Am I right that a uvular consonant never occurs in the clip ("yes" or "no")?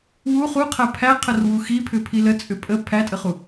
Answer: no